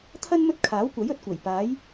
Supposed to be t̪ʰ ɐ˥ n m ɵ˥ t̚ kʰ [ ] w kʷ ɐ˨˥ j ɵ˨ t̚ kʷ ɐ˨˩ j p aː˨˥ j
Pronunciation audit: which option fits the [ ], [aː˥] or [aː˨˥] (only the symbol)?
aː˨˥